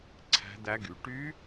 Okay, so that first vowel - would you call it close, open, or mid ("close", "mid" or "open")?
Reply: open